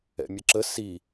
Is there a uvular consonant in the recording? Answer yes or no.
no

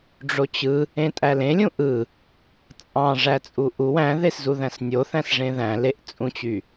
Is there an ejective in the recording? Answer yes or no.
yes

